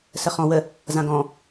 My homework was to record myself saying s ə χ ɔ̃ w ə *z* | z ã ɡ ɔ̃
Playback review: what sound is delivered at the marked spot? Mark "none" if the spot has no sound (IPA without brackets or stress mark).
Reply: none